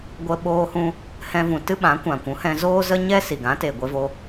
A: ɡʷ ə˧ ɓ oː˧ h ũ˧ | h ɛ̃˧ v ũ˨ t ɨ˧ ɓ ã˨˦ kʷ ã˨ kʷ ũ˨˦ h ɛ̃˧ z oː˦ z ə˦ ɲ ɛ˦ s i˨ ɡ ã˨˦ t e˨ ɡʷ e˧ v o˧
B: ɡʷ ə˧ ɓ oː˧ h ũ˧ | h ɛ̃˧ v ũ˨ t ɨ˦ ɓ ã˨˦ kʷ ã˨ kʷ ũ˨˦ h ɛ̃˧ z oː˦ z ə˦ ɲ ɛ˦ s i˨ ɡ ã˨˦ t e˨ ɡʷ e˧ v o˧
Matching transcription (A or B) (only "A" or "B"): B